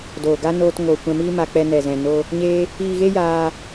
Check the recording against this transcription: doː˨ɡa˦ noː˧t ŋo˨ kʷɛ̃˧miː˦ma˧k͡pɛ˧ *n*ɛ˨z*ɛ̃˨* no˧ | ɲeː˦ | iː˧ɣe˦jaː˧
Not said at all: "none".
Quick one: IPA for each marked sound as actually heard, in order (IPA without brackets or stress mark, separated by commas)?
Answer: n, ɛ̃˨